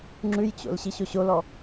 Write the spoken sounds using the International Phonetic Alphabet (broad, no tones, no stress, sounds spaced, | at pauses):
ŋ͡ǁ ʉ j t͡ɕ o̰ l ɕ i ɕ o ɕ o l ɔ